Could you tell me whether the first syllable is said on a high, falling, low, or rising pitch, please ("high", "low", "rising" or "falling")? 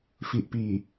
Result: low